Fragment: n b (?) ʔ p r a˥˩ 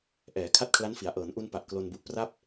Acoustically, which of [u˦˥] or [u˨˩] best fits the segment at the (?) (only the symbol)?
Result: u˨˩